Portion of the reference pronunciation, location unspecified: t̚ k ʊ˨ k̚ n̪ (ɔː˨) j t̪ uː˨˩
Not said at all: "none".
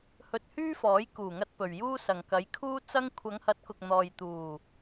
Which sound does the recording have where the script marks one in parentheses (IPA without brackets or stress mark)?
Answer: ɔː˨